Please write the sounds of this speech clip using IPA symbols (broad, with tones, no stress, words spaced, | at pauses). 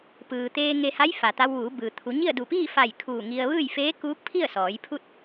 pɯː˩t̪eː˧ ŋe˧ha˧˥jfa˩t̪a˧w ʋuː˩˧bɯː˩ t̪ʰu˩˧ɲi˥˨ə̯du˧˩ piː˥˨fa˧˩j kʰuː˧˩ŋi˧ə̯ ʋɯː˥˨jfeː˧˥ kuː˧˥k̚pʰi˥˨ə̯sɔː˩˧jpʰu˥˨t̚